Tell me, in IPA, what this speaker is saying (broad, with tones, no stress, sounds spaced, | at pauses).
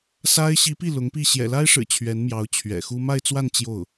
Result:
s a˥ ɪ̯ ɕ i˧˥ p i˥˩ l ʊ˧˥ ŋ p i˥˩ ɕ j ɛ̰˨˩ l a˥ ɪ̯ ʂ ɻ̩˨˩ t͡ɕʰ ɥ ɛ˧˥ n m j ɑ˧˥ ʊ̯ t͡ɕʰ ɥ ɛ̰˨˩ x u˥ m a˥˧ ɪ̯ t͡s w a˥˧ n t͡ɕ j o˥˩ ʊ̯